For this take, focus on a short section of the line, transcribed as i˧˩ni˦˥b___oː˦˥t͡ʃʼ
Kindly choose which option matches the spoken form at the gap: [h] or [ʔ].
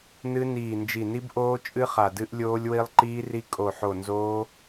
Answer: ʔ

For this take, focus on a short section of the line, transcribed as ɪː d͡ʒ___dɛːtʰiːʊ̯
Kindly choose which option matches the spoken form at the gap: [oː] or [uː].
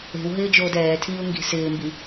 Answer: oː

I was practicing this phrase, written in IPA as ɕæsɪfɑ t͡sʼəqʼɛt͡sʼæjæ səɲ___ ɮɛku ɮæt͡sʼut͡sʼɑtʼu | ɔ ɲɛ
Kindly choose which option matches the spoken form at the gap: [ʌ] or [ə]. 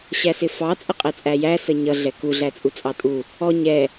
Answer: ʌ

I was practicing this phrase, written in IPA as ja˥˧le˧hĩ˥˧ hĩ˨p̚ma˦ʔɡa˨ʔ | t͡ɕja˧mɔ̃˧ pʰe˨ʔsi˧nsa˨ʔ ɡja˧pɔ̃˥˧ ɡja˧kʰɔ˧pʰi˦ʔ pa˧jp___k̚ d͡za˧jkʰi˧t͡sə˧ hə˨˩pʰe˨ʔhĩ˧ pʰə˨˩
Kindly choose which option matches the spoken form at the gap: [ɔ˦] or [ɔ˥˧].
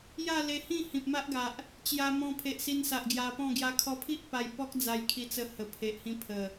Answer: ɔ˦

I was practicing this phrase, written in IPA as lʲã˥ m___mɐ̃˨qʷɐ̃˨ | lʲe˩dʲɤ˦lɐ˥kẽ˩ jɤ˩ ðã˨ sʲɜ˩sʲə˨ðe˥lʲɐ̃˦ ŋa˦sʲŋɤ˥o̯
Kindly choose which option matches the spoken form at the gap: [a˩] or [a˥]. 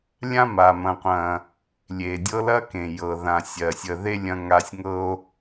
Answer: a˩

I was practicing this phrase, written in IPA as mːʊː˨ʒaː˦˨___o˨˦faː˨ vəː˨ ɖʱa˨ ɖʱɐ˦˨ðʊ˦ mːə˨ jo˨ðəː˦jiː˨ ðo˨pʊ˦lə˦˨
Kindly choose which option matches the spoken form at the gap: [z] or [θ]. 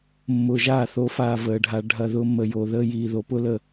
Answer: θ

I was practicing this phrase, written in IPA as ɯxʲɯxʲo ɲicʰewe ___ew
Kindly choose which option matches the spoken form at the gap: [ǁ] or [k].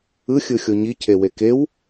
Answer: k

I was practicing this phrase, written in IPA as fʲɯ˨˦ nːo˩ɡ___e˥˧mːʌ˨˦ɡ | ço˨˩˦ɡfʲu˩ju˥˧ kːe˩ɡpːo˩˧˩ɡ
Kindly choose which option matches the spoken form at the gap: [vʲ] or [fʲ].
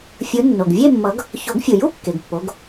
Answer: vʲ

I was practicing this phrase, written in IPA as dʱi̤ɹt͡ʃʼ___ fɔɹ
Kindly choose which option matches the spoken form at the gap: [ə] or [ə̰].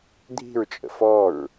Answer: ə̰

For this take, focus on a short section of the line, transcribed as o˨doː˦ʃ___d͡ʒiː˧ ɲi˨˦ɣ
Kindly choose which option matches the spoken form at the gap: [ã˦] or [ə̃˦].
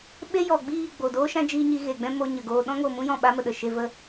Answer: ã˦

